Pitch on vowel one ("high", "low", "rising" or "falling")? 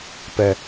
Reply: low